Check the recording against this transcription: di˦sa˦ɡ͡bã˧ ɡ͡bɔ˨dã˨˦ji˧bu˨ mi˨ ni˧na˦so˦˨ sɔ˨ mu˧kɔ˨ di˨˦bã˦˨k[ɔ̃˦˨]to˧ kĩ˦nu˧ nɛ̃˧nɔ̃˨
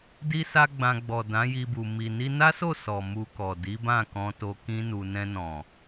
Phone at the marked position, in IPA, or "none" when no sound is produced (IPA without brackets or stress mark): ɔ̃˧